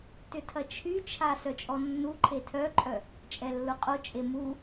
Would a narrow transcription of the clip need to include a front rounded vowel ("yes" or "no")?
yes